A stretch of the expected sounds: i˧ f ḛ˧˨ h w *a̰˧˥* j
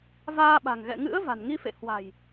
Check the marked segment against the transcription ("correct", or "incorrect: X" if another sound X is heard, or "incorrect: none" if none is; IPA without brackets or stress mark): incorrect: a̤˨˩